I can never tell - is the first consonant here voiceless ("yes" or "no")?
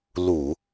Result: no